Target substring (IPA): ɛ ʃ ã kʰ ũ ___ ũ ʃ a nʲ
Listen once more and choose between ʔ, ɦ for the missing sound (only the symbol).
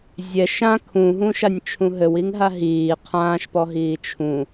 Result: ɦ